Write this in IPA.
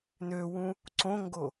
n ø w ũ | ǀ õ ŋ ɡ o

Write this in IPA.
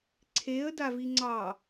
ǀʰ e ə̯ d a v i ŋ͡ǀ ɑ

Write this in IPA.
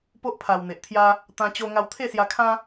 p o˦ ʔ pʰ a˨˩ w n̪ e˨ ʔ t̪ʰ j a˦ | t̪ ã˧ t͡ɕ o˧ ŋ a˧ w t̪ʰ e˥˧ s j a˧ kʰ ã˦

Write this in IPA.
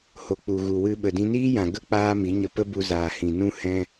h o˨ k͡p u˨ ɣ u˨ w ɨ˧ ɓ ə˨ d ĩ˧ n iː˦ j ã˨ ɡ ə˦ k͡p aː˦ m i˨˦ ɲ ə˧ p ə˦ b u˧ z aː˨ h ĩ˨ n ũ˦ h ɛ̃˧

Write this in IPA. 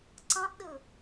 ǀ ɑ̃ ʔ ɗ ɯ

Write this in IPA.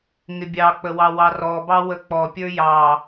ŋ ɪ bʲ ɑ k͡p ə w ɑ w ɑ r ɔ b ɑ w ə k͡p ɔ pʲ ə˞ j ɑ

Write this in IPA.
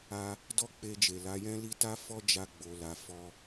a˧ | d ɔ˦ k͡p e˧ d͡ʒ e˨ l a˨˦ j ɛ̃˦ l i˦ t a˦ f ɔ˦ d͡ʒ a˧ ɡ͡b o˧ l a˧ f ɔ˧

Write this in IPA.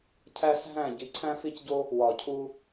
cʰ æ˦ s ɦ æ̃˦˨ ɟ i˨˩ ǀʰ æ̃˦ f i˦˨ c ɟ o˦ | w ɒ˨˩ cʰ u˦

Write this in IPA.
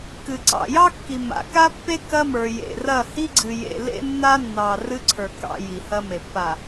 k ɨ˨ ǀ ɑ̰˨ j ɑ˦ kː i˨ m a̰˨ k a˦ pː e˦ k ɐ˦ m ə˞˨ j ḛ˨ r ɐ˦˨ h i˦ ɡ͡ǀ ɨ˨ j ḛ˨ l ḛ˦ nː a˦ nː ɑ˨ r ɨ˦ ǀʰ ə˞˨ k ɑ̰˦˨ j i˨ h ɐ˦ m e˨ pː a˨

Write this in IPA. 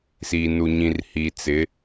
s iː˨ n u˨ ɲ ĩ˨ r h i˨ t͡s ɪ˨˦

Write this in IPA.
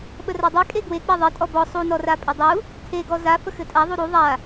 ɓ ə r a dˤ e kʼ e ɡ w e k͡p a ðˤ e tʼ ɔ b ɔ sˤ u n ɔ r a pʼ ɘ dˤ u | tʰ e ɡ ɔ z a f ə x ɘ tʼ a ðˤ u ɾ u ðˤ a

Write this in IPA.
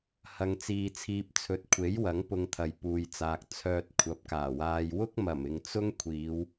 h ɐ˧ ŋ t͡s iː˧ t͡sʰ iː˧ p̚ t͡sʰ ɵ˨˥ t̚ kʷʰ e˨˥ j w ɐ˨˥ ŋ p ʊ˧ ŋ t̪ʰ ɐ˨ j p uː˨ j t͡s aː˨ k̚ t͡sʰ œː˧ t̚ kʷʰ ɐ˨˥ p̚ k aː˨˩ w aː˧ j w ʊ˥ k̚ m ɐ˨˩ m ɪ˨ ŋ t͡s ʊ˥ ŋ kʷʰ iː˨˧ w

